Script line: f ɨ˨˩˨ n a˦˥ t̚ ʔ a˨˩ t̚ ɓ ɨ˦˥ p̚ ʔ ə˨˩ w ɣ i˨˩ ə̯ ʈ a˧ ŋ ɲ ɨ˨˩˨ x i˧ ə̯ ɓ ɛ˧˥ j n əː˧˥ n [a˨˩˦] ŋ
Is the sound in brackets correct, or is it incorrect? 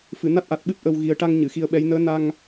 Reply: incorrect